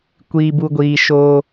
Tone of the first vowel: low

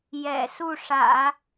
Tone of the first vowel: low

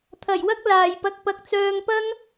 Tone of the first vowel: low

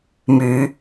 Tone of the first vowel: rising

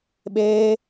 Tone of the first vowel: high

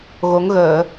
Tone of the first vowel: rising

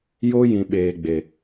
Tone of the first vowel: high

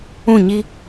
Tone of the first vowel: falling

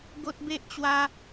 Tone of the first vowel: high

